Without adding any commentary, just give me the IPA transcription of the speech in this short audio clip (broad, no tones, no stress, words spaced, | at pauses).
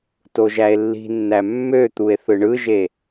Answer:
toʒæe̯lːi̤nːæ mːøt̪ue̯ θɯɳɯʒe